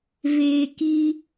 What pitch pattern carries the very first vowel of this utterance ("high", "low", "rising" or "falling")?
low